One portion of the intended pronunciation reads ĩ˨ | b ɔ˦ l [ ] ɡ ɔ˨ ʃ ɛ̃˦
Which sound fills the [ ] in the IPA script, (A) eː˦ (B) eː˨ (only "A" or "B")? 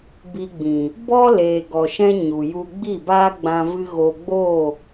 B